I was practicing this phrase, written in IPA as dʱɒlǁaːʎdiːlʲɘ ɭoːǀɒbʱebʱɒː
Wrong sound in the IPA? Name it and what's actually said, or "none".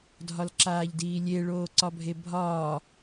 ɘ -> e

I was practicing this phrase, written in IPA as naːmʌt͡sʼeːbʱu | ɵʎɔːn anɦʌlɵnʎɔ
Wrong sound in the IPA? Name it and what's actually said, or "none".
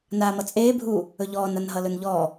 none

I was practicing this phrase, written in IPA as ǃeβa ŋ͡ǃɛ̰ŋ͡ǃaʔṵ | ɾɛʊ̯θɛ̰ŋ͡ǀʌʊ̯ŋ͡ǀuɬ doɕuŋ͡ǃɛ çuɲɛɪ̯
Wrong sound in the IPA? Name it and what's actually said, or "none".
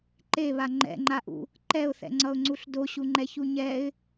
ɾ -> ǃ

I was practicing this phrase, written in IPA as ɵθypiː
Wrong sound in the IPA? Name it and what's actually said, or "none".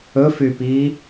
θ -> f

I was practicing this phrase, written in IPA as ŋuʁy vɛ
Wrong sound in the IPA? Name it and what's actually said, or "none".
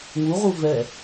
y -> u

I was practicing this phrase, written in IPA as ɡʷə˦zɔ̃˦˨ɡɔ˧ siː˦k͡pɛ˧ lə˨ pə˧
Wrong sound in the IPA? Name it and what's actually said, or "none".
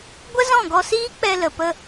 none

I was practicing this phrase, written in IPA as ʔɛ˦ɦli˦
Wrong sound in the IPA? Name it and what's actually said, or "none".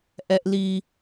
ɦ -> ʔ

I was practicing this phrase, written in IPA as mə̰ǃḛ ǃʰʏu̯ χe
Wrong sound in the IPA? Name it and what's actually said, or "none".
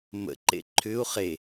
none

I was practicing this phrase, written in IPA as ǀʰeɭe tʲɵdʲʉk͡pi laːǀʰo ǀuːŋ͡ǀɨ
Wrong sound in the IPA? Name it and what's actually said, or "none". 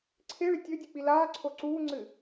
none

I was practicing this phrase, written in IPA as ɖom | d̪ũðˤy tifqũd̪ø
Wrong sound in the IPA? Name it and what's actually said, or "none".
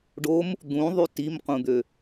f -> m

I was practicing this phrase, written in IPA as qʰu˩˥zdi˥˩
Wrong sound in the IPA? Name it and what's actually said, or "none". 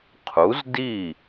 none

